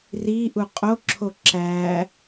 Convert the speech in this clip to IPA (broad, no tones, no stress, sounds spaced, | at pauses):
r i ʔ u qʼ o ǁʰ o ǁ æ